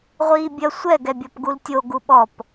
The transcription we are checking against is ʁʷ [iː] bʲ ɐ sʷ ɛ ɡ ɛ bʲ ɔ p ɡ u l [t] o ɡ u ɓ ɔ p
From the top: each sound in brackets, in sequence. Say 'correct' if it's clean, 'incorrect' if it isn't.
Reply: correct, incorrect: tʲ

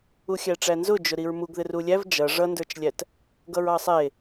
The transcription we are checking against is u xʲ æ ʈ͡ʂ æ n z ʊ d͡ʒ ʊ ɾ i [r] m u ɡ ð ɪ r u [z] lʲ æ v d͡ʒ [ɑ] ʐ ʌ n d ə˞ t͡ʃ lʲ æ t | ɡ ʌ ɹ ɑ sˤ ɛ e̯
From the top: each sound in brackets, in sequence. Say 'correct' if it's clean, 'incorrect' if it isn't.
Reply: incorrect: ɹ, incorrect: none, incorrect: ʌ

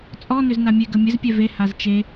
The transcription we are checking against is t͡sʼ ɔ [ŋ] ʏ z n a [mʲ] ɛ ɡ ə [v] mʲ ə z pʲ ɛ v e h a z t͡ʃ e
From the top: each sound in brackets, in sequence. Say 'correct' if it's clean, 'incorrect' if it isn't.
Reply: incorrect: n, correct, incorrect: none

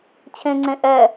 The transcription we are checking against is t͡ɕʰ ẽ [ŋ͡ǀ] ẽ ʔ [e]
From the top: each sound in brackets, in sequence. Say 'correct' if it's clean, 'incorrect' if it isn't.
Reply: correct, incorrect: ɛ

